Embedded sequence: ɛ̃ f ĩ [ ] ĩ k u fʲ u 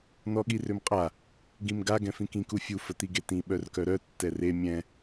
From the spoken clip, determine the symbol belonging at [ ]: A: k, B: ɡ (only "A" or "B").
A